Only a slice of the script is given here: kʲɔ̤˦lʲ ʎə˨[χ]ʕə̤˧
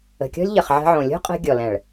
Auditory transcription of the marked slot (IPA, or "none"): χ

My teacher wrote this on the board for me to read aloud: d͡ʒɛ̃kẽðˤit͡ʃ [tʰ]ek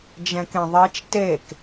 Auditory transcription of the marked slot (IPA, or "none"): t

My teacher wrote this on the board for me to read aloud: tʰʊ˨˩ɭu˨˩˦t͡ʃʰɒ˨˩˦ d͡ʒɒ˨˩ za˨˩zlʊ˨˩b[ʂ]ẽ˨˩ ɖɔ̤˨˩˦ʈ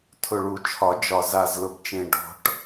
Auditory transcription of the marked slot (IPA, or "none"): t͡ʃ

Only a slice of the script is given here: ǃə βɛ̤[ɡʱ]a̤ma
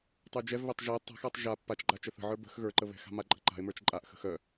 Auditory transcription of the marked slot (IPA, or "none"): x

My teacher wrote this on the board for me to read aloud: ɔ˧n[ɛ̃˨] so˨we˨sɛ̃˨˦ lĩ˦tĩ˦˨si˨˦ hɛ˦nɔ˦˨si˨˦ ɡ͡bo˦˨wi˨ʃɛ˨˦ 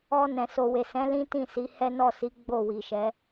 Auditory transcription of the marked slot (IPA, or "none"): ɛ̃˨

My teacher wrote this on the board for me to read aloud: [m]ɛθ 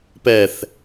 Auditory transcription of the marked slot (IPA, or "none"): p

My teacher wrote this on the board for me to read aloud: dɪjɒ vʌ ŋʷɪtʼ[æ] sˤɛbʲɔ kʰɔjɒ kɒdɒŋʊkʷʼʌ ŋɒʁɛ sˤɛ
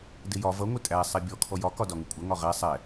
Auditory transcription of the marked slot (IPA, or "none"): æ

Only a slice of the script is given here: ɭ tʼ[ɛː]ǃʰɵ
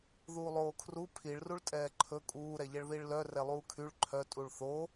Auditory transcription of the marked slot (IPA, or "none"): ɛː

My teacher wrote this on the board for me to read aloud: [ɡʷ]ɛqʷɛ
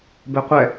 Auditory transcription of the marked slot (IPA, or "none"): b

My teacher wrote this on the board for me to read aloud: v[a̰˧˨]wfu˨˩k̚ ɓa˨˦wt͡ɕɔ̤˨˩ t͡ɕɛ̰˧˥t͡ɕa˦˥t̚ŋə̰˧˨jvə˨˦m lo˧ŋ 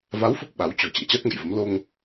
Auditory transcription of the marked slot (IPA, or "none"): a˨˦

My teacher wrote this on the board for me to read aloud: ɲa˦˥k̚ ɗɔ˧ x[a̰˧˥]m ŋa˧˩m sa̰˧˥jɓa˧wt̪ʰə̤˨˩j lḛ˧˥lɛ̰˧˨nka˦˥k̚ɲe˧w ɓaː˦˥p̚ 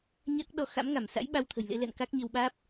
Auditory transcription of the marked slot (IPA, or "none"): a̰˧˥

